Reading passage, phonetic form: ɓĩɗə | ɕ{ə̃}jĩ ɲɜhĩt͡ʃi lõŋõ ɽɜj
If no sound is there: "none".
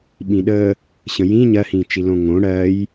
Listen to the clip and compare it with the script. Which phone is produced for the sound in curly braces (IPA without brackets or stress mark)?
ə̃